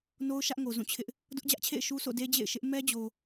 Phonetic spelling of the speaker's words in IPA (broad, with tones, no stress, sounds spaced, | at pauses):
n o˦ ʊ̯ ʃ ä˦ ʔ ŋ o˨ z ũ˦˨ t͡ɕʰ ɪ˦ ʔ | d ʊ˦ ʔ d͡ʑ ä˦ ʔ t͡ɕʰ ḛ˦˨ ɪ̯ ʃ u˦ s o̰˦˨ d e˦ d͡ʑ ḛ˦˨ ɪ̯ ʃ ɪ˦ ʔ m ɛ˦ d͡ʑ o˨